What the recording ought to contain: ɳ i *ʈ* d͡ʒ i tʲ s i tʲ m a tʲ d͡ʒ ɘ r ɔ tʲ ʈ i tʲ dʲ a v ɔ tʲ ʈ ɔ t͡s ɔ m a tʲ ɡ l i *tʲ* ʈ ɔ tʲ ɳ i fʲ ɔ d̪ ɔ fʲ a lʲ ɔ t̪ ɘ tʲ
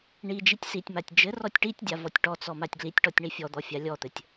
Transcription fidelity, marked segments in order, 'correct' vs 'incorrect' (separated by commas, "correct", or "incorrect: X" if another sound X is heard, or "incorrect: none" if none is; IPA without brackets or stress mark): incorrect: none, correct